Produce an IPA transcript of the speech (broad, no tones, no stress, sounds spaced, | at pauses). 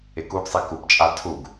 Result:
ɪ k u ɡ sˤ i k u p t͡ʃʼ a tʰ u ɡ